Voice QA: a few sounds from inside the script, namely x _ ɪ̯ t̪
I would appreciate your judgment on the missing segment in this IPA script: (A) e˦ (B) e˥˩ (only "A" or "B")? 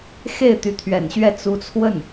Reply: B